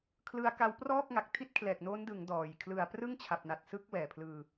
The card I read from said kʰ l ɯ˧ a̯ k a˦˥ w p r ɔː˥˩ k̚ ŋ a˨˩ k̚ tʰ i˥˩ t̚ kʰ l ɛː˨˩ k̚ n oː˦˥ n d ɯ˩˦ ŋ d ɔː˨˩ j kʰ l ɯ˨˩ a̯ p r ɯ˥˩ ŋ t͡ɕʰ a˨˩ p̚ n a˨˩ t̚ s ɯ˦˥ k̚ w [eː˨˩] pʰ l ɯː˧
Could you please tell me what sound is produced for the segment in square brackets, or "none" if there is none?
ɛː˨˩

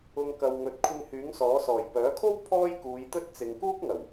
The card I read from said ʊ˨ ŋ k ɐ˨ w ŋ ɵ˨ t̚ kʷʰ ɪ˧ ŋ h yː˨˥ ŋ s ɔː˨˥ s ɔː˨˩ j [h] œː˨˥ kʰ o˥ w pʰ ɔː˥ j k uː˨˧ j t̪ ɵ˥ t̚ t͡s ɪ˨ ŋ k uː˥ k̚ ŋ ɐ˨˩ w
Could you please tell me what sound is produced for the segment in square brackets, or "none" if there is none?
p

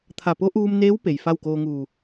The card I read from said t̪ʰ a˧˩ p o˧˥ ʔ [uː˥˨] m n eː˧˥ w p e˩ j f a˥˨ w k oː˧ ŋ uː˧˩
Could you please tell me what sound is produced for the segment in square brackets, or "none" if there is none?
uː˧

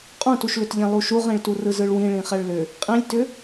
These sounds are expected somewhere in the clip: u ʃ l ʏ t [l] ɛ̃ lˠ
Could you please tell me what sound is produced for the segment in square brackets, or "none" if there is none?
ʎ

